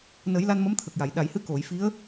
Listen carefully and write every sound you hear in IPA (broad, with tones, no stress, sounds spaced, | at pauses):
n ə˨˩˦ j l a˧ n m ə˧˥ m t̪ʰ ə˨˩ k̚ j a˨˩˨ j ɗ a˨˩˨ j h ɨ˧˥ k o˨˩˨ j f i˧˥ ə̯